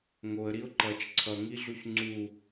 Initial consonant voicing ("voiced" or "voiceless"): voiced